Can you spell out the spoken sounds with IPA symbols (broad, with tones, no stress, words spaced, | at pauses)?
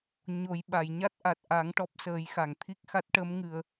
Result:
ɲo˨˩˦jɓa˨˩˨j ɲa˦˥t̚ʔa˨˩t̚ʔa˨˩˦ŋ ʈɔ˦˥p̚səː˨˩˦jxa˨˩˨ŋ t̪ʰi˦˥k̚xa˦˥t̚ ʈə˧˥mŋɨ˨˩ə̯